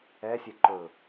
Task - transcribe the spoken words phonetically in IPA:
ɛ sʲ ɛ ǃ ɵ

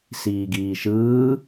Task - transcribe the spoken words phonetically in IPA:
s iː ɡ iː ʃ ɯː

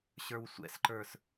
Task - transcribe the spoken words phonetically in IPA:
ɕ ə˞ w sʷ ɛ̰ s ǃ ə˞ s

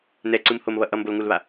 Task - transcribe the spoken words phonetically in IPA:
n ɛ ǀ ɯ m h o m β ʌ ʔ ʌ m b o l ŋ u l β a

